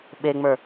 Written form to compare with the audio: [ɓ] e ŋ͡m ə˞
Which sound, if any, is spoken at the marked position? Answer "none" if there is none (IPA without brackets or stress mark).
ɓ